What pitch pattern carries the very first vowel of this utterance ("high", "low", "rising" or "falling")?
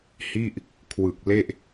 falling